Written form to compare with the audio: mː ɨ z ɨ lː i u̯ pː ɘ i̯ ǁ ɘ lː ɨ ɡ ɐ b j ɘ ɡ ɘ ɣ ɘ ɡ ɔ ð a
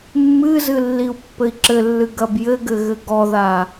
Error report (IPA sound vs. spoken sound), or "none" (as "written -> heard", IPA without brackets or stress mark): none